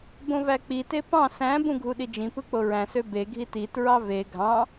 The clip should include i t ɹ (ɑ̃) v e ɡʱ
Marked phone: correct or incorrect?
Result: incorrect